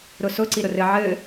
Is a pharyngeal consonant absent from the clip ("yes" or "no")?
no